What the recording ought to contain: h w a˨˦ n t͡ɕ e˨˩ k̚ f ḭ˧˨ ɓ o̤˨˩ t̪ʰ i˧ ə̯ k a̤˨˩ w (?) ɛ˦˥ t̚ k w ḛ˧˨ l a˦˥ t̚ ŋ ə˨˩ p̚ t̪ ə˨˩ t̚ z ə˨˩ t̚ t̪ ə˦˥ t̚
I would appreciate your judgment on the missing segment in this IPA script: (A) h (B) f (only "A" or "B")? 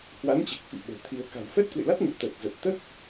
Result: B